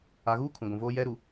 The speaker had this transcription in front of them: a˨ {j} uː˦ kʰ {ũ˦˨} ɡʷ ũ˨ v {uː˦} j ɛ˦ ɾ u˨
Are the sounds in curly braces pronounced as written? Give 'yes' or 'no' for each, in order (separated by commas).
no, no, no